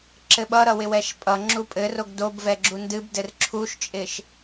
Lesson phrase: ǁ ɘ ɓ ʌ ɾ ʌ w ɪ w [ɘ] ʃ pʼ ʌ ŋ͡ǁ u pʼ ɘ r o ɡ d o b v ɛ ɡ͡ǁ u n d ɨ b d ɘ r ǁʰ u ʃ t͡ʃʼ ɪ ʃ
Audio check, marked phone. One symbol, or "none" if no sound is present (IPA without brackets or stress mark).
ɛ